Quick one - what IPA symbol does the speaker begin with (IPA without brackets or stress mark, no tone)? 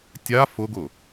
tʲ